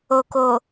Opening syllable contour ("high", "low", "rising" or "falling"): low